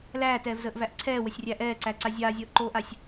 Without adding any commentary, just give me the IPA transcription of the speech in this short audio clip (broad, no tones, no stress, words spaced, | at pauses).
læːtɛːvzəːʔvæʔ ǀʰɛːwəsʲrʲæ ʔɛːǀæǀa zʲaːzʲəːʔǃoːʔasʲ